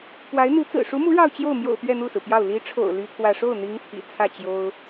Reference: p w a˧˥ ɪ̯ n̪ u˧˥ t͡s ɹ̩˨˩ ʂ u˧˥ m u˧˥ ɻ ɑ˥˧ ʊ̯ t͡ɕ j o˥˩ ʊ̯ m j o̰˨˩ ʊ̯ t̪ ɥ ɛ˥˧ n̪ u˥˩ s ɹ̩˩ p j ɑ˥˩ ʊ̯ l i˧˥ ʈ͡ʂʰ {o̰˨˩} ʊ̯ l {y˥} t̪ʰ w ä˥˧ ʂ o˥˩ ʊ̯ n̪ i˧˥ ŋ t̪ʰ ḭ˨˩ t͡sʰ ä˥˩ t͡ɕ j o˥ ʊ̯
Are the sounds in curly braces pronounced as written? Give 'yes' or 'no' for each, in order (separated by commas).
yes, yes